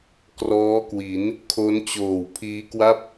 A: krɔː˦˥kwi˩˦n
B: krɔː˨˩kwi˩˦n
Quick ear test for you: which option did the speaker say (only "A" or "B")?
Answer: A